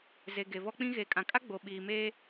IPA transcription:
z e˨ ɡ e˨ v ɔ˦ k͡p ĩ˦ ɣ eː˨ kʼ ã˨ kʼ a˦ ɡ͡b o˨ ɓ iː˨ m eː˦

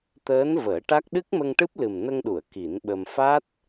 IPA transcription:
t̪ əː˧˥ n v əː˨˩˦ ʈ a˦˥ k̚ ɗ ɨ˦˥ k̚ m ə˧ ŋ ʈ ɨ˦˥ p̚ l ɨ˨˩ m n ə˧ ŋ ɗ u˨˩˨ ə̯ k i˨˩˦ n ɓ ə˧ m f a˦˥ t̚

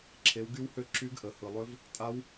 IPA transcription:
ǁʰ e˩˧ w ɡ y˧˥ w h ø˧˥ ǁ y˧˥ ɡ ʔ ə˩˧ h ɯ˩ lˠ ø˧˥ v | tʼ a˧˥ w

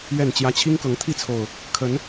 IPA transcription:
ɥ ɛ˥˨ n t͡ɕ j ä˦ t͡ɕʰ i˦ ŋ k ɤ˨˦ ŋ t̪ʰ i˥˨ t͡sʰ o˨˩ ʊ̯ | kʰ ə˨˦ n

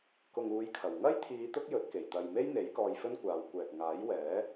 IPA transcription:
k ʊ˨ ŋ uː˨˧ j kʰ ɐ˨˩ w ŋ ɐ˥ j t̪ʰ iː˨˧ t̪ ʊ˥ k̚ j ɵ˨˥ t̚ k e˨˩ j t̪ ɐ˨ j m e˥ j n̪ e˨˥ j k ɔː˧ j f ɵ˥ n kʷ aː˨˧ w kʷ ɛː˨ k̚ ŋ aː˨˥ j w ɛː˨˥

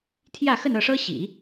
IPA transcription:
t̪ʰ j ä˥˧ x ə˥˧ n ɤ˥˩ ʂ ɤ˥ ɕ ḭ˨˩˦

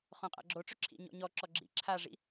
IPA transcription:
χ õ qʼ a̰ ɡ͡ǁ o ʈ͡ʂ ʏ ǁʰ ḭ ɲ ɔ̰ ɲ ɔ ǁ ɔ ɡ͡ǁ ḭ ǁʰ a ʐ ḭ

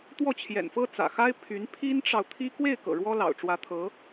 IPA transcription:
t̪ w ɔ˥˩ t͡ɕʰ j ɛ̰˨˩ n f ɤ˥ t͡s ä̰˨˩ x a˥ ɪ̯ pʰ y˧˥ n pʰ i˥ n ʈ͡ʂ ɑ˨ ʊ̯ t̪ʰ i˥ k w e˥˩ ɪ̯ k ɤ̰˨˩ ɻ w ɔ˥ l ɑ̰˨˩ ʊ̯ ʈ͡ʂ w ä˧˥ t̪ʰ ɤ˧˥

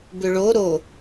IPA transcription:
b ʏ ɭ o ɾ o

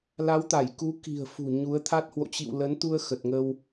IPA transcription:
l a˨˦ w t̪ a˧˩ j k u˨˦ k i̤˨˩ ə̯ f ṳ˨˩ ɲ u˨˦ ə̯ t̪ʰ a˦˥ t̚ h w o̰˧˨ t͡ɕ ḭ˧˨ w l ə˨˦ n t̪ u˧ ə̯ x ə˨˩ t̚ ŋ ə˧ w

